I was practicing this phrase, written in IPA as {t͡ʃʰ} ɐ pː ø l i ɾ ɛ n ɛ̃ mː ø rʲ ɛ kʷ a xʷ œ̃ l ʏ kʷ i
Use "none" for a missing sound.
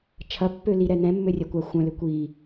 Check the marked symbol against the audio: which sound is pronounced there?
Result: t͡ʃʰ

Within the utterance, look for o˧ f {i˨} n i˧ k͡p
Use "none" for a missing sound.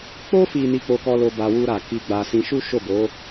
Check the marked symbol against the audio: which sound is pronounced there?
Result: i˨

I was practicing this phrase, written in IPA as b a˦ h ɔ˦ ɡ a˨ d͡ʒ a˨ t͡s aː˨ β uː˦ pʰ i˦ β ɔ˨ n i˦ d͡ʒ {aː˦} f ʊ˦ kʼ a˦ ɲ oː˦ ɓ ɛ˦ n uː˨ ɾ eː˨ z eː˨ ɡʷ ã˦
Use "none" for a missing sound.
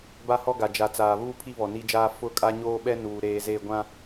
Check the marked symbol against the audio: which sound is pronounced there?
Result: aː˦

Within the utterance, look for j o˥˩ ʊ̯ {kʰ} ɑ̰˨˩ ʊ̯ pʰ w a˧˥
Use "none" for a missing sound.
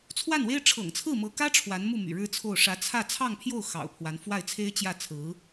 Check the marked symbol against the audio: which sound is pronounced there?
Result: x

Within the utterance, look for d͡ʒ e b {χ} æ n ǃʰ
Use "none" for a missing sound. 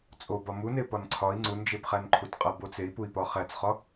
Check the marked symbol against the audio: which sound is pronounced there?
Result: χ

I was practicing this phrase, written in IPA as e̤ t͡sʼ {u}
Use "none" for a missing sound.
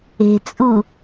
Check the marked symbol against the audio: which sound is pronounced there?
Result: u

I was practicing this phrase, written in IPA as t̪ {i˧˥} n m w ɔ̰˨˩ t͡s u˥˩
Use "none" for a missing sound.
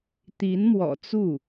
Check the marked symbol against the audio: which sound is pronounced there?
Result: i˧˥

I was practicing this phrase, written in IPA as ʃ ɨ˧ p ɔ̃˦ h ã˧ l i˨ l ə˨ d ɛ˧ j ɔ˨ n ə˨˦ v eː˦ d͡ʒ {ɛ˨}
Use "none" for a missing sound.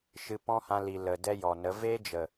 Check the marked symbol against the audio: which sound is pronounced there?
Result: ə˨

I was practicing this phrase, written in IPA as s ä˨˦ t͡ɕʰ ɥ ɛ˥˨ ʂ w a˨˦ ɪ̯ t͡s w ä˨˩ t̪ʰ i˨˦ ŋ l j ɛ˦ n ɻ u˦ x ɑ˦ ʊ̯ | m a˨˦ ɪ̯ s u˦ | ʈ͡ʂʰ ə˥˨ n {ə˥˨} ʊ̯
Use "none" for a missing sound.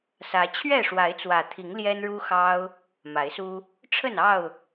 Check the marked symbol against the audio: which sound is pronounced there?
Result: ɑ˥˨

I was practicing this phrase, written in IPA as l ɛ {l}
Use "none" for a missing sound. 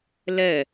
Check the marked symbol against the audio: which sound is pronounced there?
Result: none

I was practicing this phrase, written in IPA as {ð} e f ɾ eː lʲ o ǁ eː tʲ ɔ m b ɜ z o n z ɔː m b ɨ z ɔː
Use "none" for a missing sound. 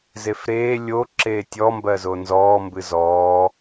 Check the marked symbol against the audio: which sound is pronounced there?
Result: z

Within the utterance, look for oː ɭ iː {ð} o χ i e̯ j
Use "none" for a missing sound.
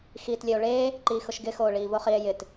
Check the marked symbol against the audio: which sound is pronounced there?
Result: v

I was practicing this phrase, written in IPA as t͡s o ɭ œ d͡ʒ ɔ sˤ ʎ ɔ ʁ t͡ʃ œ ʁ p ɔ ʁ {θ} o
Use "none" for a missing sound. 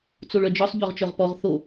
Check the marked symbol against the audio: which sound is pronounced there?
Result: θ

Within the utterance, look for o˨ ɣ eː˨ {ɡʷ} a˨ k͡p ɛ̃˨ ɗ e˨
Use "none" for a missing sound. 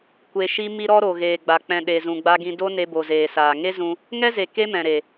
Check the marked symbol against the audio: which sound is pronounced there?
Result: ɡ͡b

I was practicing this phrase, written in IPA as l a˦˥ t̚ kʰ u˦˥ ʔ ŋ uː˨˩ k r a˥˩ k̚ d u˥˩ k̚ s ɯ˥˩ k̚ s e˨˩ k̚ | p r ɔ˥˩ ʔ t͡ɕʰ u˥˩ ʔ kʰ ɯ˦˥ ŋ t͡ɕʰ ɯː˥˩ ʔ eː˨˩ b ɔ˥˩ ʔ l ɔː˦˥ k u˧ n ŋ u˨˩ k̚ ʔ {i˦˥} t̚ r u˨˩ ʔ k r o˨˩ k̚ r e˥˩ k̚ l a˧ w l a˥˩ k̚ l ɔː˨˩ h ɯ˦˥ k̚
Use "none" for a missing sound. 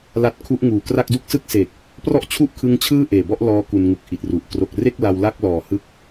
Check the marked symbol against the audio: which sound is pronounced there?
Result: i˨˩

